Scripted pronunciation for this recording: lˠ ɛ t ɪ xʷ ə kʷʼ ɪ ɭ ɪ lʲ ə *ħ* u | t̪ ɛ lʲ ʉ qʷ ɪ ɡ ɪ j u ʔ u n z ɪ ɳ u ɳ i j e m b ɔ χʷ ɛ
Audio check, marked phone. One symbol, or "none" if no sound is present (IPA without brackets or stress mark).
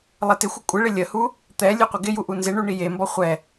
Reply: h